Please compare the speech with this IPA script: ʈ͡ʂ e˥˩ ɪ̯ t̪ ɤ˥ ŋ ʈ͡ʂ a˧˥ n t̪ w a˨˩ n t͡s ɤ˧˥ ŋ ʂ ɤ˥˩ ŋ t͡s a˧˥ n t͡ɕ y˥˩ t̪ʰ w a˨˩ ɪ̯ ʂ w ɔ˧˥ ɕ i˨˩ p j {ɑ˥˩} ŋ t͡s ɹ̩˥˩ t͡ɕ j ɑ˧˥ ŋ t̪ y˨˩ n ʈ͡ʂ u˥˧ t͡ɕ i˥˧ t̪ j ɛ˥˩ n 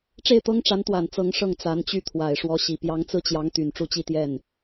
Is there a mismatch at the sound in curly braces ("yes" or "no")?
yes